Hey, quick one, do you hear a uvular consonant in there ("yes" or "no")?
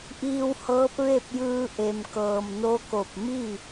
no